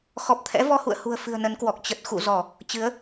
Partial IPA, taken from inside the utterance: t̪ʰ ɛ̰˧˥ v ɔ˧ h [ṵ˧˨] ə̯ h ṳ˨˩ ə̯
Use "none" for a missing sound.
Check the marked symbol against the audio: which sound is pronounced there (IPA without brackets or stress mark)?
ṵ˧˨